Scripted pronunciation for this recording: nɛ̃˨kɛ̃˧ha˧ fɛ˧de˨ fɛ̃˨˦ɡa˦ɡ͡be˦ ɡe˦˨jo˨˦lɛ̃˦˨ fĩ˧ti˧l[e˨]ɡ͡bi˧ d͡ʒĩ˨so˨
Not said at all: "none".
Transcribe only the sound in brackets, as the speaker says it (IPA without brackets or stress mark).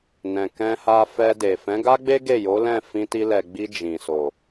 ɛ˨